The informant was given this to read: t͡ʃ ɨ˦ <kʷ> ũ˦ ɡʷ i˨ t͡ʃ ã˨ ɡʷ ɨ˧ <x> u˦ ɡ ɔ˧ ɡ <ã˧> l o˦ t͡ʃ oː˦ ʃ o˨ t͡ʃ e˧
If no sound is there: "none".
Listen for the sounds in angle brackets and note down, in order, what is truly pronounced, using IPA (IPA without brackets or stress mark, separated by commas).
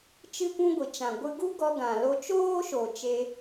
kʷ, ɡ, ã˨